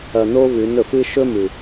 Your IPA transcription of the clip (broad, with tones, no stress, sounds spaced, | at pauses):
ɐ˧ n o˦ v ʉ˨˦ n ɵ˨ f ɨ˦ ʃ ɵ˦ m ɨ˨